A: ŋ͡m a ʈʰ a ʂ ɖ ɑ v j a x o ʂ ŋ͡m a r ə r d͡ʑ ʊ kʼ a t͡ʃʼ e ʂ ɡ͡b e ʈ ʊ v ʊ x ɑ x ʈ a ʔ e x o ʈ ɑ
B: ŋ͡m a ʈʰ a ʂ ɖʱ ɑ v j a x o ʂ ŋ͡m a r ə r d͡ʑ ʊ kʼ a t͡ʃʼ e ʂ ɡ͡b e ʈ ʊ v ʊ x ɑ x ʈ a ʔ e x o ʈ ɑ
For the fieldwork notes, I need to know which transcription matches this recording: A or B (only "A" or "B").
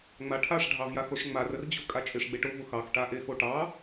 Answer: B